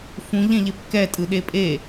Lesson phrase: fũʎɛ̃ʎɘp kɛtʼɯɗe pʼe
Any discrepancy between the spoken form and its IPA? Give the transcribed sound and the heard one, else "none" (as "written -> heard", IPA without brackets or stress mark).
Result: ɘ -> e